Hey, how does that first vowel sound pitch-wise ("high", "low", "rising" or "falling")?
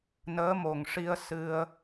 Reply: rising